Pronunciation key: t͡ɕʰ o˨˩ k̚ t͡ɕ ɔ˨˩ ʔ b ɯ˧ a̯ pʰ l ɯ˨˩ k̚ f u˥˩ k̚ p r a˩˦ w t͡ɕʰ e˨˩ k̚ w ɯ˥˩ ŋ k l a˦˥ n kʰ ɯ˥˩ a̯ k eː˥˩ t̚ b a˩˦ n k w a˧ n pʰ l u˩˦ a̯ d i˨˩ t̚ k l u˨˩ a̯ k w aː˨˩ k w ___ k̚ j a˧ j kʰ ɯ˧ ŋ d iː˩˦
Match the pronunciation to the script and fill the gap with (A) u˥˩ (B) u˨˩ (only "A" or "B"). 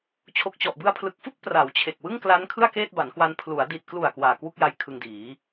A